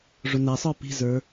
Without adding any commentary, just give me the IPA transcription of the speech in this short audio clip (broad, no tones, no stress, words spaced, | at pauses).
ʐʊnæsˤə˞ pi̤zə˞